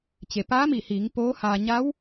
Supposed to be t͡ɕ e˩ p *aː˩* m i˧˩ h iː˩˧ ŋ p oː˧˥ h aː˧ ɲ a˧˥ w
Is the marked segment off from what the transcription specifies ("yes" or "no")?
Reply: yes